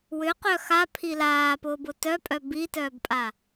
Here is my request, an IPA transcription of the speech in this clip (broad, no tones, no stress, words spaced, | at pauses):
wʏqœ xapʰi laːpʊːbʊ tœpʼœ bitœːbpʼa